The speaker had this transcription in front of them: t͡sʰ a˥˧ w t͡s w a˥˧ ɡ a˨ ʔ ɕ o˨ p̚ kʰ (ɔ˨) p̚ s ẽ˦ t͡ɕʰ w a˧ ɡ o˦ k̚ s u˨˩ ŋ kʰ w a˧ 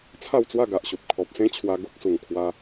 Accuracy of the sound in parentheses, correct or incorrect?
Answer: correct